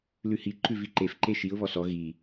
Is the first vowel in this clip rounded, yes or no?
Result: yes